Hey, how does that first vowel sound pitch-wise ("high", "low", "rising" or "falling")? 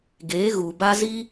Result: rising